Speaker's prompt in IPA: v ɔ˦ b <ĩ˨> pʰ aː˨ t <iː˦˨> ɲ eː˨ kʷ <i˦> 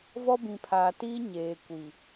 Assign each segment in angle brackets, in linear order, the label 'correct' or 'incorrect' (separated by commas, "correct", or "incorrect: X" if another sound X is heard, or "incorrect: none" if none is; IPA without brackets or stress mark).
correct, incorrect: iː˦, incorrect: i˨